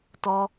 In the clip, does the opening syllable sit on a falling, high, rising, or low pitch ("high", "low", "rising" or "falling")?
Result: high